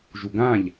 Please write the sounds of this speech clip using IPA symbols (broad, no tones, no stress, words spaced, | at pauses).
ʒuɡãʎ